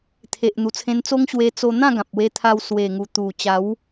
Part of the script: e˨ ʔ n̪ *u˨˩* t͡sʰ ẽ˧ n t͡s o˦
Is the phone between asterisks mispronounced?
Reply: no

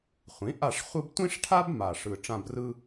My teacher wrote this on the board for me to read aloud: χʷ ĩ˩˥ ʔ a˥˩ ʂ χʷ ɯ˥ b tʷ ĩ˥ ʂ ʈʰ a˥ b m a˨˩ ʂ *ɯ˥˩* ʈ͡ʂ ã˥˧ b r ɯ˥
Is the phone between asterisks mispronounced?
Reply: yes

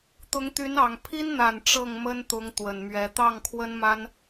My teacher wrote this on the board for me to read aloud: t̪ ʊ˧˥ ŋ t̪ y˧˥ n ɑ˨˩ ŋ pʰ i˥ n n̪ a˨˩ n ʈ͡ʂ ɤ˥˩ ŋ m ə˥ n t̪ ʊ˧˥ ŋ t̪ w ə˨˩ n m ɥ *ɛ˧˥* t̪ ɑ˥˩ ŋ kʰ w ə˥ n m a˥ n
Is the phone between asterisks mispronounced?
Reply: no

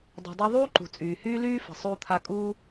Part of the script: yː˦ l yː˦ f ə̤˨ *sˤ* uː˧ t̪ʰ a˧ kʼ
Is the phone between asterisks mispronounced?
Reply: no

